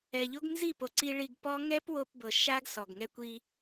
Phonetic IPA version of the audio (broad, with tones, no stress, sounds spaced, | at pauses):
ɛ˨ ʎ o˦ ɡ n z i˦˨ p o˨ ǀ i˦ ɭ i˧ ɡ p ɔ˦ ŋ ɛ˦ p w o˧ p b ɤ˨ ʃ a˦ ɡ s ɔ˨ ɡ ŋ ɛ˦ kʷ i˦